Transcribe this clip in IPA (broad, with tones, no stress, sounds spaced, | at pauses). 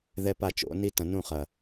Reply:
ð ɛ˦ p a˦˨ t͡ʃ o̰˨˦ n i˦ t ɐ̃˨ n ũ˦˨ χ ɐ˨